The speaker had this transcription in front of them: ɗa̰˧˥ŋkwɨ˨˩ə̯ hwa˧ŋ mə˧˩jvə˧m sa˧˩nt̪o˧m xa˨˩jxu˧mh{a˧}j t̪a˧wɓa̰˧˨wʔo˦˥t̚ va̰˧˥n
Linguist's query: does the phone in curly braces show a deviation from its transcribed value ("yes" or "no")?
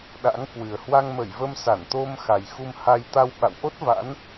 no